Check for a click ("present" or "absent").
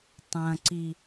present